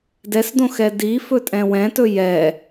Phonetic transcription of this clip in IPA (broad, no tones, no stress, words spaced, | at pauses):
dɛsdõxɛ difɵtʼɛ̃ wɛ̃tɵ jɛ